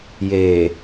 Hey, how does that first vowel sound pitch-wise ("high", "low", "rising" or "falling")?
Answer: low